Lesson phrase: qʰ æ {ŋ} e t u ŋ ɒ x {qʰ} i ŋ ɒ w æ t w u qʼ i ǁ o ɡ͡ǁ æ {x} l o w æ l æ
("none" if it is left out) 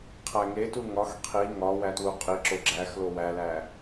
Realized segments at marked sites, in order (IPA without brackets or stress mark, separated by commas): ŋ, qʰ, x